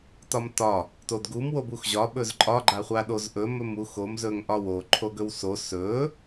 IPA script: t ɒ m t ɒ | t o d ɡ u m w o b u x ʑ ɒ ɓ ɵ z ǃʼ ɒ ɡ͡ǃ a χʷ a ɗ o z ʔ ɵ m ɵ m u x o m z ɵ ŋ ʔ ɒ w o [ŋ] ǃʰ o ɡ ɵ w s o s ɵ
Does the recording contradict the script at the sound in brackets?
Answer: yes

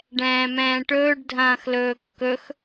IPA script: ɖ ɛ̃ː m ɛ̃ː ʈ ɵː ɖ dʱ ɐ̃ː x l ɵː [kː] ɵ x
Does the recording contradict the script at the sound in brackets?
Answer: no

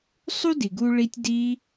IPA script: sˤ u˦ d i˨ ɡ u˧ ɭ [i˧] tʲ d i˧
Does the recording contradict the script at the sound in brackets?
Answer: no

